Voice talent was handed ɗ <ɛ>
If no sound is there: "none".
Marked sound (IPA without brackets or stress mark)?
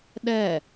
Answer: ɛ